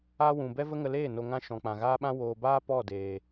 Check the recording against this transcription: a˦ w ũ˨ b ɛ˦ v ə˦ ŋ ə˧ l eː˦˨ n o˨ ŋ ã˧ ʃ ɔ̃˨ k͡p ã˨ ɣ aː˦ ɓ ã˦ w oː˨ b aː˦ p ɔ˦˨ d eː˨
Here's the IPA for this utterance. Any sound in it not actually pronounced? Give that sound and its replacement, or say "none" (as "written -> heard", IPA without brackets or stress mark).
none